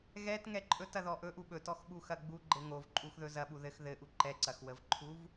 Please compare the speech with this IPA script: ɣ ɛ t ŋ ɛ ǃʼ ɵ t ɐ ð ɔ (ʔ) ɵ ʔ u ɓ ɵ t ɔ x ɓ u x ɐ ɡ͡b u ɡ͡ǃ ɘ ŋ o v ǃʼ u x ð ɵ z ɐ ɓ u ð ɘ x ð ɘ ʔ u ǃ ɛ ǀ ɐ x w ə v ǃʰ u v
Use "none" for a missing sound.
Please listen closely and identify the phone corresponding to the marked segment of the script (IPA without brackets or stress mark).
ʔ